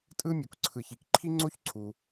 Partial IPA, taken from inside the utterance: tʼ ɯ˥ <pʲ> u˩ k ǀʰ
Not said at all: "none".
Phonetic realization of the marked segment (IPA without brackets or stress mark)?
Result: mʲ